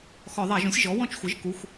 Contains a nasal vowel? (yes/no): yes